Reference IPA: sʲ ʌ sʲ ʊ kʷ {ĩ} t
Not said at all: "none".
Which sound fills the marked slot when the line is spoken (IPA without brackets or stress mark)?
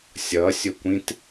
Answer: ĩ